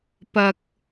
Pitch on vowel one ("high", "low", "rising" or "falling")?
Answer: low